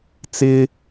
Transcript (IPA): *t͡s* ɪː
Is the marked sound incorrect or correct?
correct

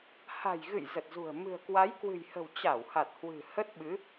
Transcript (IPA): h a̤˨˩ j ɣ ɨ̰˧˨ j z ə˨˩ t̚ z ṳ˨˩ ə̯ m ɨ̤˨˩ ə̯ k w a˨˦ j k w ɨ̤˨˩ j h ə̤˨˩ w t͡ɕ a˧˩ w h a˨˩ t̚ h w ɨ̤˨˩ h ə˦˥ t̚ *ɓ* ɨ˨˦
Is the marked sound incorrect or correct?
correct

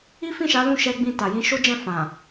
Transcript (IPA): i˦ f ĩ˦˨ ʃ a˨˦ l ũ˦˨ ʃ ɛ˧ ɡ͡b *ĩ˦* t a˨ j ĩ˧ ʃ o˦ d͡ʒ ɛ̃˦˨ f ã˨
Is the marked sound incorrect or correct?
incorrect: ĩ˧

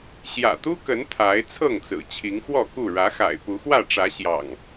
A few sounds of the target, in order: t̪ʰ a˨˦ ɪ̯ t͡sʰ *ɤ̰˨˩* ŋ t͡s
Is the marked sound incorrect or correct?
incorrect: ɤ˥˨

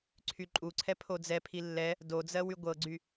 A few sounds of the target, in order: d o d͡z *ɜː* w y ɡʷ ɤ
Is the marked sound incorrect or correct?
incorrect: ɜ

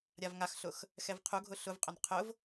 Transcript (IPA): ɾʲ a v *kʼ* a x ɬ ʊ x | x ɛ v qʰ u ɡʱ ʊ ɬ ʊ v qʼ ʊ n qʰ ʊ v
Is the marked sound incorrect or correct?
incorrect: ŋ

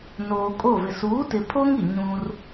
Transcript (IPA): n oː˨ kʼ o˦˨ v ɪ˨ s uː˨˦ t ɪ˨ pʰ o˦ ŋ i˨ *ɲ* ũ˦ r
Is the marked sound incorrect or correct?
correct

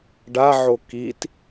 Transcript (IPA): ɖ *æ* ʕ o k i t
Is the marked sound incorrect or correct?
incorrect: a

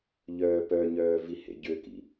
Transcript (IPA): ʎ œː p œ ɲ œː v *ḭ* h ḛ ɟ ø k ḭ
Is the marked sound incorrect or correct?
incorrect: i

